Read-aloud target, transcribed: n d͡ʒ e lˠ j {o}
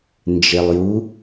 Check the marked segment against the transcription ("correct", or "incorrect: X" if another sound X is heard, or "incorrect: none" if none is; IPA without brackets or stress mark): incorrect: u